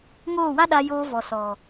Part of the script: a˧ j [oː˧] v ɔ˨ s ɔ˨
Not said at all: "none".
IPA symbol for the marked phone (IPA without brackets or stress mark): oː˧